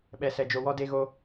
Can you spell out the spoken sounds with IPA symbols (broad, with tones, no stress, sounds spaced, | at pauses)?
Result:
ɓ ɛ˨ s ɛ˨ d͡ʒ o˨ w ɔ˦ d e˦ ɣ o˦